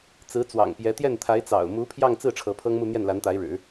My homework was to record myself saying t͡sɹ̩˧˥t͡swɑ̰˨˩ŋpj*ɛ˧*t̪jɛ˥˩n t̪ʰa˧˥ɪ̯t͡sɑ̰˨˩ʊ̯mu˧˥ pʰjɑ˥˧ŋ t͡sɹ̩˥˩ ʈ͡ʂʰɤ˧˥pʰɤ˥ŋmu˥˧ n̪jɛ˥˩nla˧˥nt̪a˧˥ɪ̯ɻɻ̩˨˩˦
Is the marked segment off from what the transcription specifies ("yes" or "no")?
yes